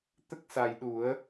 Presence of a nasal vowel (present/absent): absent